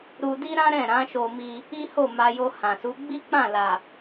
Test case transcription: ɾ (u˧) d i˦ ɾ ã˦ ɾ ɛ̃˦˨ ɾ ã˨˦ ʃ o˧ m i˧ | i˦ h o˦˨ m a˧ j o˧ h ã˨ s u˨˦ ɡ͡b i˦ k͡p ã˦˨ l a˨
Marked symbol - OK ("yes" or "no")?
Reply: yes